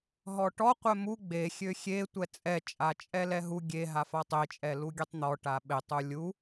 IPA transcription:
ɦɔʈɔ qʷɛmu ɡ͡be xʲøxʲe tʷɛt͡sʼɛ t͡ʃʼat͡ʃʼɛlɛɦu ɡʲeɦafa tˤet͡ʃʼɛ luɡʲøtˤn̪ɔ ʈaɓetˤu lʲu

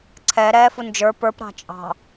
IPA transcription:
ǀʰɛ ɾɛːfund͡ʒə˞ pə˞p ɾɑ̤t͡ʃʼɑ̤

